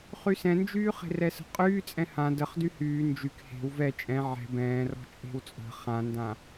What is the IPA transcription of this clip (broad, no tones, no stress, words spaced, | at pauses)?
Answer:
χysɛ̃nd͡ʒyː χe̤rɛsə̤qʼyː t͡sʼɛ̃hã dəχ dyhyː nd͡ʒyk he̤w vɛ t͡ʃʼɛ̃ ʕɛ̤ bɛ̃ːrɔ̤ t͡ʃʼe̤wt͡sʼə̤ χãndã